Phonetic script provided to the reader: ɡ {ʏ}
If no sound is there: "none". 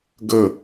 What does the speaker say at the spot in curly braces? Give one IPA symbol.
ə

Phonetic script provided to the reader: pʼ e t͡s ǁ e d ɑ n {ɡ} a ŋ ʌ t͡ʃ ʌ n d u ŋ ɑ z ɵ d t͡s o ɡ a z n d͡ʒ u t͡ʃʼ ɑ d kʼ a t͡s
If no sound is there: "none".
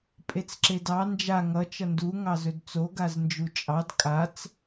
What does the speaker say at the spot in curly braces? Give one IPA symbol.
d͡ʒ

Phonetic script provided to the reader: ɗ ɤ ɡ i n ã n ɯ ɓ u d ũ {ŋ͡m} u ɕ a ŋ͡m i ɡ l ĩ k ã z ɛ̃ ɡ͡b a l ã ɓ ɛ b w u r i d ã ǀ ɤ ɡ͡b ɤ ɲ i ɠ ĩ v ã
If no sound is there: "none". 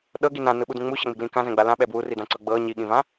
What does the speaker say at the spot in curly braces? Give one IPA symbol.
ŋ͡m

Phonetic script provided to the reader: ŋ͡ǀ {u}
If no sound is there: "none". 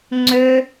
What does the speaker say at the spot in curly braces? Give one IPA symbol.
ø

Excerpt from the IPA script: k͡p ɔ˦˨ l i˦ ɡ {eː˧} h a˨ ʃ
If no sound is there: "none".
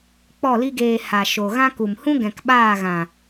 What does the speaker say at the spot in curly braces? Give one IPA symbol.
eː˧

